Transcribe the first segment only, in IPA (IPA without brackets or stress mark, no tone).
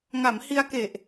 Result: ŋ